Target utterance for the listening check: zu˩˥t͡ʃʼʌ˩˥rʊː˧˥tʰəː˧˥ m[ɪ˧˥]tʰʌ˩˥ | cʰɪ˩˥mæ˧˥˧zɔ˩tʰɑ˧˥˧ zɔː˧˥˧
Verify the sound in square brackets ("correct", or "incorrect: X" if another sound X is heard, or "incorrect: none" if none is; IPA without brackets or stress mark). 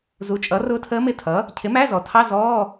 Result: incorrect: ɪ˧˥˧